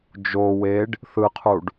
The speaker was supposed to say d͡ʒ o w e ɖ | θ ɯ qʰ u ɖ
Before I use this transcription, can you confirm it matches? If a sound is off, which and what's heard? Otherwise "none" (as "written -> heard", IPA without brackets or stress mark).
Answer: none